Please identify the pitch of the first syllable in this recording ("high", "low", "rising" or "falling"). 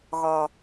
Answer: low